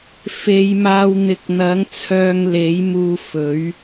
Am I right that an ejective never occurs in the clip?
yes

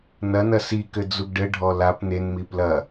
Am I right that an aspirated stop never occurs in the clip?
yes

